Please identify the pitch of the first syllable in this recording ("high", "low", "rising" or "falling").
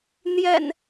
low